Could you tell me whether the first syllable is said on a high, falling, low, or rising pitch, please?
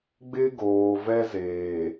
high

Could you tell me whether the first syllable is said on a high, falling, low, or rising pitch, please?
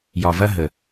low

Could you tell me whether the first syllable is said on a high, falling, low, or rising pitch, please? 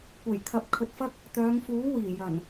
low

